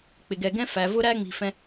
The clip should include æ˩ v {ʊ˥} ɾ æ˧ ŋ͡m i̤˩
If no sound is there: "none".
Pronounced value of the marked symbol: ʊ˧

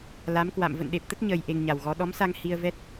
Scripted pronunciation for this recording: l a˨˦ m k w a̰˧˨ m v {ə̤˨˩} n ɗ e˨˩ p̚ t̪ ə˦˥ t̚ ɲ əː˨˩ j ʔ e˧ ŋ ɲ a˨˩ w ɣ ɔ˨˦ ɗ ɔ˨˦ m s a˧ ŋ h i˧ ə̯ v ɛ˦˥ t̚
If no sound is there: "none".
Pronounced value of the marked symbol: ə̰˧˨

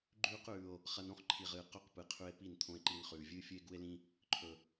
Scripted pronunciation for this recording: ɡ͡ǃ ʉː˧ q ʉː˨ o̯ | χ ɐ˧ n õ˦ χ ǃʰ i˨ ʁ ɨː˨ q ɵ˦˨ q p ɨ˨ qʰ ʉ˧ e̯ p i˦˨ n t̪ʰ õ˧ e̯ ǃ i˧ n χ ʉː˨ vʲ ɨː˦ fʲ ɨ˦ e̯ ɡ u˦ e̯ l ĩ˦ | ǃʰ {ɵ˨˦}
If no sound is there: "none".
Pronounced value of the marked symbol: ɵ˨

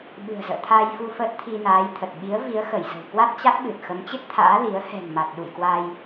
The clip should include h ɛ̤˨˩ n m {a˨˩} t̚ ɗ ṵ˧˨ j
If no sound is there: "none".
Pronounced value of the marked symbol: a˨˩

